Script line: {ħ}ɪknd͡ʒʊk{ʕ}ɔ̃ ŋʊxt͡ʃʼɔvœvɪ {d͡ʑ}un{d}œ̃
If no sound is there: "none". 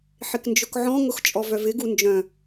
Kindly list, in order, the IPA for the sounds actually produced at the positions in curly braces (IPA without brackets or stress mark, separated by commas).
ħ, ʕ, ɡ, d͡ʒ